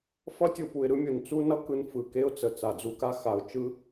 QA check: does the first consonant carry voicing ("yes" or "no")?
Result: no